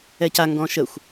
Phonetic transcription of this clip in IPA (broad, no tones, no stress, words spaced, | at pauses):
ɛca ŋɡɔ̃ʃəxʷ